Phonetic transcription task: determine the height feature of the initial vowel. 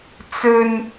mid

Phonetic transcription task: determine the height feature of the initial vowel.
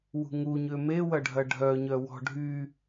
high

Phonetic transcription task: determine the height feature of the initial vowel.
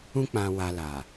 high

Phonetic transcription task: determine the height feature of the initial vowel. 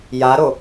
low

